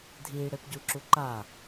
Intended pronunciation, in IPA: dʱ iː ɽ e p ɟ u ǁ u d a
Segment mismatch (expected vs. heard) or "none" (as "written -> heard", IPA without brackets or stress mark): d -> ǃ